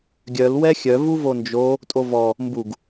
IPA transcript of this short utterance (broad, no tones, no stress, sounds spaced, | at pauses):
ɡʲ œ l w ɛ xʲ œ v u v o n d͡ʒ o | tʼ o v ɔ | m b u ɡ